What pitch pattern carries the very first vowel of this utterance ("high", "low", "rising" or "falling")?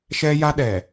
high